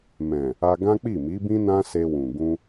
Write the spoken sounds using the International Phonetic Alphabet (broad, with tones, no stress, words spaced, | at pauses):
mɛ̃˨ | a˧ɡã˦k͡pi˦˨ mi˨˦bĩ˦nã˦ se˧wũ˨ ɡũ˧